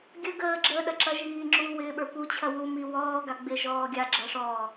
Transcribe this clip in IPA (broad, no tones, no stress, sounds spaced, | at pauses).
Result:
ɡʲ ə ɡ əː ɡ͡ǁ əː ɗ ɐ ǁ ɐ ʒ iː ŋ͡ǁ uː w ɪː ɓ ə˞ p u t͡ɕʰ ɐ w u m i w ɔː ɡ a ɡ͡b ɪ ʒ ɔː ɡʲ a ɡ͡ǁ ɐ ʂ ɔː